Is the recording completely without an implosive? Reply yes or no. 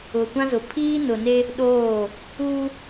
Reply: no